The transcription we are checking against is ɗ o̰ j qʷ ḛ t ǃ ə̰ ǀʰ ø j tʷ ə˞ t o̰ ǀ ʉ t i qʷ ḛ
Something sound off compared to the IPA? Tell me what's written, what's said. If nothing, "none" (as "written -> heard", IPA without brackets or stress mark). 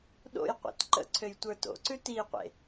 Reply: none